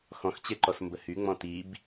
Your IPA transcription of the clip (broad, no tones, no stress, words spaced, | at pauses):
xɔ̃xt͡ɕeǃɔs mbəhyŋ͡mɔ̃ tib